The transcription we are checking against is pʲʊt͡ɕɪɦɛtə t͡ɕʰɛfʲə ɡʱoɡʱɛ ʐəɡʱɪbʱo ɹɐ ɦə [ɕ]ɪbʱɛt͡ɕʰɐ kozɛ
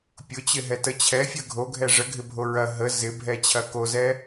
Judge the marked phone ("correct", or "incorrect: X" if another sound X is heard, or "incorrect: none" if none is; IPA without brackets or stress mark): incorrect: z